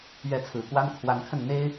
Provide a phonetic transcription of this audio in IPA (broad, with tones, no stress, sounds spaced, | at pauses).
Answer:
ɥ ɛ˧˥ t͡sʰ ɹ̩˨˩ k w a˥ n kʰ w a˧˥ n kʰ ə˥˩ n n̪ e˥ ɪ̯